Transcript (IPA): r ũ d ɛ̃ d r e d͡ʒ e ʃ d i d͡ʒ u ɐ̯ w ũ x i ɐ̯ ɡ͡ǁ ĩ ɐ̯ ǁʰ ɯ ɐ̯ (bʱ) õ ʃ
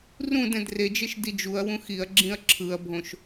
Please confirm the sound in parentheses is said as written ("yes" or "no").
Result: yes